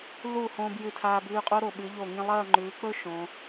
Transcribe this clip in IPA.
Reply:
lu˧˩ hõː˧bjɨ˧˩tʰaː˧ bʉː˧qʼo˥ ɾo˧˩ɓɨ˩˧ʎo˧˩ŋĩ˥˧ lˠɐː˥˧ŋ͡ǃʉː˩˧k͡pɵ˥ ʃõ˩˧

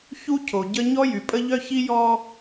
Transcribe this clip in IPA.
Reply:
çu˦cʰo˨ɟə˦ ɲɔ˦jy˨pʼə˦ ʎœ˦çi˦jɔ˦

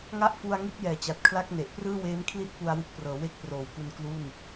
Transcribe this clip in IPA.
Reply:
ŋa˥˩ʔfu˧a̯ŋi˥˩t̚ jɛː˨˩t͡ɕa˨˩t̚kʰla˥˩k̚ne˨˩ʔ prɯː˥˩weː˦˥mkʰli˥˩t̚ pu˧a̯wɯ˦˥k̚prɤː˩˦ we˦˥k̚proː˩˦wku˧n klu˥˩n

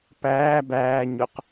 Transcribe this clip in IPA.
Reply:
pæː bæːɲʊq

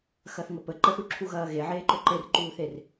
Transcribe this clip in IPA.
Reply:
xɐθŋəpə ǃəθuǁʰuɣɐː ɣeʕeːǃɵ ǃerǃuːθer

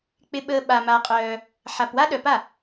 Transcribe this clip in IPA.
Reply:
k͡pɪ˧ɓəː˧ ɓa˧ma˧qʼœː˧ | ħa˧pwa˥ ɗœ˧pa˥˩

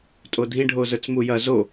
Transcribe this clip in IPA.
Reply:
tʼodʱĩɖʱozə˞t͡s mujɐ zo

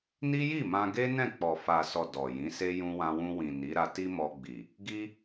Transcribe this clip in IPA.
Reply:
ni˦ji˦˨mã˧ɡe˦ nɛ̃˦˨k͡pɔ˨fa˨sɔ˨ dɔ˨jĩ˨˦se˦ jũ˧wã˧wũ˧wĩ˨ ni˨˦ ɾa˧ti˦mɔ˧ɡ͡bi˨ | ɡi˦

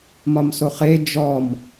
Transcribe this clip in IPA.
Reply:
mɒmsoχe d͡ʒɔm

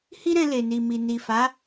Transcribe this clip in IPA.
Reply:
hi˦ɾɛ̃˧ le˨ni˨mi˨ ni˨fa˨˦

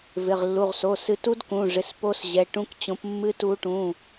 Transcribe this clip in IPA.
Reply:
vɪ˩˧˩ʁlːu˩˧˩ʁso˩˧˩ sɨ˨˦tu˦˥dkũ˩˧˩ʐɪ˩˧˩s po˦˥sʑɛ˩˧˩ʈũ˦˥k t͡ɕõ˨˦p mːɨ˨˦ tu˨˦ʈũ˩˧˩

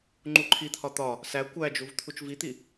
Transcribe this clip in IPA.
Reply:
ŋ͡ǃuǃʰit̪ʰɒ t̪ɒ | sæ kʷæd͡ʒuv t̪ʰut͡ʃvit̪i

